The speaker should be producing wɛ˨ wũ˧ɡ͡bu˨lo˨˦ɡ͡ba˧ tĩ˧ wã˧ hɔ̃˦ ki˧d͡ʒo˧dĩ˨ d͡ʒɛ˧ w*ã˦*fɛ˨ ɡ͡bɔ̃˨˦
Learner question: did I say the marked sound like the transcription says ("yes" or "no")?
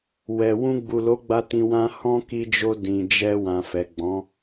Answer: no